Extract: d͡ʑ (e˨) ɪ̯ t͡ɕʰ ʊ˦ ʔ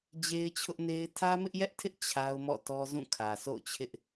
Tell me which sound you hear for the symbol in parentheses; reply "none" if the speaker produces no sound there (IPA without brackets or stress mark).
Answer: e˦